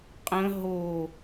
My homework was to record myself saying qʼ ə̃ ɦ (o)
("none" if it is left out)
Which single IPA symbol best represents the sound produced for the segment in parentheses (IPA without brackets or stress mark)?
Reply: o